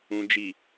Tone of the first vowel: low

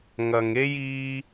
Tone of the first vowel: low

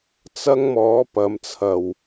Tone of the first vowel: high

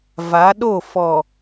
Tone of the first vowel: rising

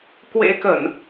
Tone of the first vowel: rising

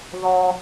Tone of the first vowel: high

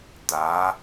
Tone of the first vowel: rising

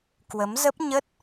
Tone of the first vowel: rising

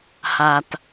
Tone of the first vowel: low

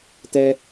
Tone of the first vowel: low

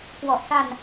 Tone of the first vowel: low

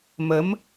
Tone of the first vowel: rising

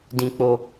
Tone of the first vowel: low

